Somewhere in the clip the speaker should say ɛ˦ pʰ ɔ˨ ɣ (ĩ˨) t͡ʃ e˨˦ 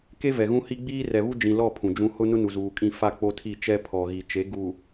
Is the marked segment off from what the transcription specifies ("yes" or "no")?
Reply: yes